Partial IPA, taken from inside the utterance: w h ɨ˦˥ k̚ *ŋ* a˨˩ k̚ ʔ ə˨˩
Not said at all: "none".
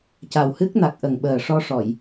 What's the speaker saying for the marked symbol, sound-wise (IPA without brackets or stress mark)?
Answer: n